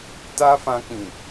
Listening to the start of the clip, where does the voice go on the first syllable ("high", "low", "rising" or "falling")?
high